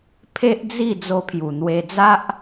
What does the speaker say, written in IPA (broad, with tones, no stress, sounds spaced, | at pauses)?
pʰ e˦ ʔ d͡z i˥˧ d͡z o˧ pʰ j u˨˩ n̪ w e˧ d͡z a˦ ʔ